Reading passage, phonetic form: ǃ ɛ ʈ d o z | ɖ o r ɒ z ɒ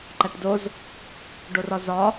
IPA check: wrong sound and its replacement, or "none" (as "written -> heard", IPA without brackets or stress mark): ɛ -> æ